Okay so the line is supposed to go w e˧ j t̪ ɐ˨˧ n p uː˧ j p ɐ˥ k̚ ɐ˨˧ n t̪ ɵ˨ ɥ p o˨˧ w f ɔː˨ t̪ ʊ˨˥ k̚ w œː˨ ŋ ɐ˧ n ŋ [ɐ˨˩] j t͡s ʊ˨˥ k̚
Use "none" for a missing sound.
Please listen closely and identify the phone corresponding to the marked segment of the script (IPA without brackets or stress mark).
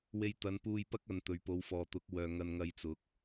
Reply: ɐ˧